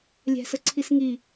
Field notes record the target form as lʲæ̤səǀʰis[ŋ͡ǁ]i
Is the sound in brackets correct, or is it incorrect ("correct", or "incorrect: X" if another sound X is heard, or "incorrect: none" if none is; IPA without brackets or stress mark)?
incorrect: ŋ